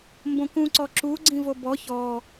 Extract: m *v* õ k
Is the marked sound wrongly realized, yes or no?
yes